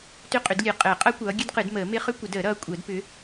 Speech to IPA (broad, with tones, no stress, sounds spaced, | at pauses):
t ʏ˦˥ qʼ ʏ˨˩˦ d lʲ ɨ˨˩˦ qʼ əː˨˩˦ qʼ ʌ˦˥ kʷ ʌː˨˦ ɡʲ ɨ˦˥ d q ɨ˨˩˦ d m əː˨˩˦ m ɪ˦˥ χ ʏ˦˥ kʷ ə˨˩˦ d əː˨˩˦ ɾ ʌː˨˦ kʷʼ əː˨˩˦ d p ʏ˨˦